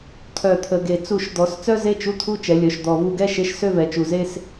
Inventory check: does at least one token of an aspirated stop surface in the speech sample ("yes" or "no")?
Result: yes